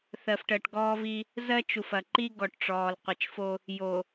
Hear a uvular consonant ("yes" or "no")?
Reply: yes